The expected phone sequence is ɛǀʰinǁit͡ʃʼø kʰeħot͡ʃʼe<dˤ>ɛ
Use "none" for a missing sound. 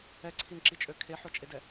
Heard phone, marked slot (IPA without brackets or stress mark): d